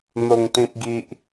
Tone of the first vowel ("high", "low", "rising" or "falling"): low